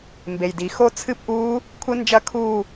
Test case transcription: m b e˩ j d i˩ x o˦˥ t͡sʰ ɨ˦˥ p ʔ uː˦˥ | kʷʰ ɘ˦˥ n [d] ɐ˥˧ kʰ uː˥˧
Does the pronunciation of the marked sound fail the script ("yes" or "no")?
yes